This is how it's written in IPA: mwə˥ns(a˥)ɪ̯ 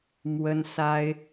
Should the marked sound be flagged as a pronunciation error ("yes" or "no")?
no